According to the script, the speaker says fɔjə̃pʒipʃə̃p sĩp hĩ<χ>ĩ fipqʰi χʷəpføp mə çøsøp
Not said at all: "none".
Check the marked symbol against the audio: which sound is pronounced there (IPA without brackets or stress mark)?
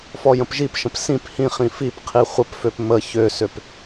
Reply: χ